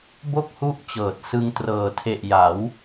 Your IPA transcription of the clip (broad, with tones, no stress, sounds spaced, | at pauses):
b o˥˩ k̚ h u˦˥ ʔ t͡ɕ ɤː˨˩ t̚ s ɯ˧ ŋ t r ɤː˨˩ tʰ e˨˩ ʔ j a˩˦ w